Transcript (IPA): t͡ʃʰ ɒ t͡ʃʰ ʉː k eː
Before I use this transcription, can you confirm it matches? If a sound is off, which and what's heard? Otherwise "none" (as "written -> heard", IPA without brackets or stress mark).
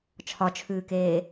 none